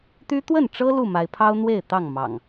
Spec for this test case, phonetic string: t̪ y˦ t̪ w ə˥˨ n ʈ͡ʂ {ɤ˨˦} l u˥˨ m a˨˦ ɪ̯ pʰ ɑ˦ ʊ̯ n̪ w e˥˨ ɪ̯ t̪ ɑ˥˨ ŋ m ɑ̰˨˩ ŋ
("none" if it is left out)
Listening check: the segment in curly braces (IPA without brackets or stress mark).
ɤ˦